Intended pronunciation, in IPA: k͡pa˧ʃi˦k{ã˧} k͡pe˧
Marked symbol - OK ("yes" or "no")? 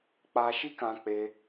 yes